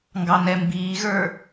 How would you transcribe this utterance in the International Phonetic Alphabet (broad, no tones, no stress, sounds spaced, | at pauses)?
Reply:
ŋ ɡ ɑ n ɛ m b iː ɣ ə˞